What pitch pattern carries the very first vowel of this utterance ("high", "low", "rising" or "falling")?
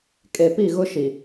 low